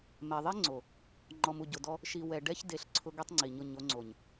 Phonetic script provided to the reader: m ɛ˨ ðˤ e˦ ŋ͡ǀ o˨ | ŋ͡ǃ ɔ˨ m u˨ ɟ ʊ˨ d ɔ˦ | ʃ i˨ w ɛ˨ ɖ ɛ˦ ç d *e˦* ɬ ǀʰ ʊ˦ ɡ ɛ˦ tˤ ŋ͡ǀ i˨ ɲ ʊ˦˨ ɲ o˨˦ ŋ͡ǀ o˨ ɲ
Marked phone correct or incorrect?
incorrect